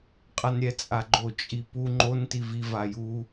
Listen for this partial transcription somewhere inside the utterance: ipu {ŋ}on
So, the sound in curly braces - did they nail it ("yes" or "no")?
no